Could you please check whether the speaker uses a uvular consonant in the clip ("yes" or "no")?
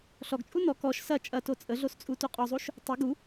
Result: yes